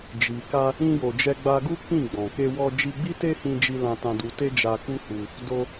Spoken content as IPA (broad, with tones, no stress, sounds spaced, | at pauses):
d͡ʒ i˨ k a˧ | ĩ˧ j o˨ d͡ʒ ɛ˧ ɡ͡b a˧ ɡ u˦ k ĩ˦˨ ɡ͡b ɔ̃˨ k e˧ w ɔ˧ d͡ʒ i˧ ɡ͡b i˦ t e˦ h ĩ˧ d͡ʒ i˧ l ã˧ t ã˧ d u˧ t e˦ d͡ʒ a˧ k u˦ h u˧ | d o˧